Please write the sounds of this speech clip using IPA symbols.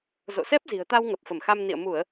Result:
z o̰˧˨ s ɛ˦˥ p̚ z i̤˨˩ ə̯ t̪ a˧ w ŋ ə˨˩ p̚ f ə˧˩ m x a˧ m n ḭ˧˨ ə̯ m u˧˩˨ ə̯

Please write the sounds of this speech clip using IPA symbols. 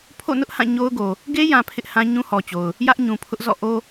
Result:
pʰ o̰˦˨ n ʊ˦ ʔ h ã˦˨ ɲ o˦ ʊ̯ ɡ o˨ | ɡ e˦ j ã˨ pʰ ɪ˦ ʔ h ã˦ ɲ ũ˦ h ɔ˨ t͡ɕ o˨ ʊ̯ | j ä˦ ʔ ɲ ũ˨ pʰ ʊ˦ ʔ z ɔ̰˦˨ ʔ o˦

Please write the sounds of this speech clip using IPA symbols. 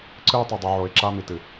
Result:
ǀ ɨ˦ ʊ̯ tˤ ɵ˨ dˤ ɨ˨ ʕ o˨ ɪ̯ ǁ a˦ m i˨ t ɨ˨

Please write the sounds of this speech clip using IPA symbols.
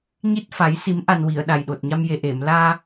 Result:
ɲ i˦˥ t̚ f a˨˩˦ j s i˨˩˦ m ʔ a˨˩ n w i˨˩˨ ə̯ ɗ a˨˩ j ɗ o˨˩ t̚ ɲ a˧ m j e˨˩ ʔ e˨˩˨ m l aː˧

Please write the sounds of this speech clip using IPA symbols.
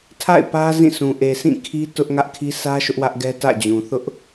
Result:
tʰ a̰˦˨ ɪ̯ p ä˦ z ĩ˦˨ s ũ˨ ʔ e˨ sʰ ĩ˦˨ kʰ i˦ t ʊ˦ ʔ ŋ ä˦ ʔ kʰ i˦ sʰ ä˦ ʃ ʊ˦ ʔ w ä˦ ʔ ɡ ɛ˦ t ä̰˦˨ d͡ʑ ũ˨ θ ʊ˦ ʔ

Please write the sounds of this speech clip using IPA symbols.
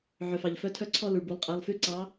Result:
ʕ œ˩ f ɑ˩ ʎ f œ˧˥ tʰ œ˥˧ ǀʰ ɔ˥˧ l u˩ ɭ b u˩˧ lˠ qʼ æ˩˧˩ lˠ f y˥˧ ǀ ɑ˧˥

